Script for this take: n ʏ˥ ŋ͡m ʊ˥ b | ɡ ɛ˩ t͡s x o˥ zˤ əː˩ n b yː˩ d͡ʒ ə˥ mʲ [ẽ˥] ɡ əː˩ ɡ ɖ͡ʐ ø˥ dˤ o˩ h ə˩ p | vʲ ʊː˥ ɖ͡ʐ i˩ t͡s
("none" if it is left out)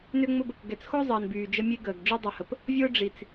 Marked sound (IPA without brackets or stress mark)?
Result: e˥